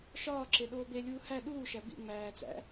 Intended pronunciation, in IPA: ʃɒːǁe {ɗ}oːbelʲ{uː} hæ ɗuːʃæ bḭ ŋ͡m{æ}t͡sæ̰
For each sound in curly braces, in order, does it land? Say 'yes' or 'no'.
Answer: yes, yes, no

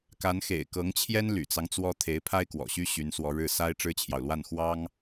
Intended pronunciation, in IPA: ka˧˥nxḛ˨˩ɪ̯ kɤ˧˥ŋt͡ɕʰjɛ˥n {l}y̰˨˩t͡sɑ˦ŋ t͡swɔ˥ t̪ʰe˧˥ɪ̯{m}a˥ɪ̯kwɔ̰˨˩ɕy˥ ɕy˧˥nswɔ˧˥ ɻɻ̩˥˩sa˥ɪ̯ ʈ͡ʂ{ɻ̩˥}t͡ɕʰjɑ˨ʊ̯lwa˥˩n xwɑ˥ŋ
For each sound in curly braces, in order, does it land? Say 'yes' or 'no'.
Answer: yes, no, yes

